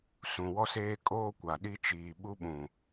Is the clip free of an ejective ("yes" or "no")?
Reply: no